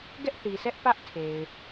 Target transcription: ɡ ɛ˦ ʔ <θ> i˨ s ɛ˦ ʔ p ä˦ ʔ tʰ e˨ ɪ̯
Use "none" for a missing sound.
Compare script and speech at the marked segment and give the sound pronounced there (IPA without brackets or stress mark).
θ